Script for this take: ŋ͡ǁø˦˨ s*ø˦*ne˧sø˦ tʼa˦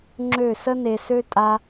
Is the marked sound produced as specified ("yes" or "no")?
no